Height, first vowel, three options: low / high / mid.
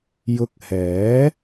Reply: high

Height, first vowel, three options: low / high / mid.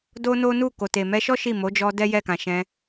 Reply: mid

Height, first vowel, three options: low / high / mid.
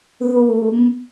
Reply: high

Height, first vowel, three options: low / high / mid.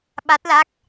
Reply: low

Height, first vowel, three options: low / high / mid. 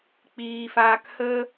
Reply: high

